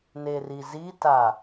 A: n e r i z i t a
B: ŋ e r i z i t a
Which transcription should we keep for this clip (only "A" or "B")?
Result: A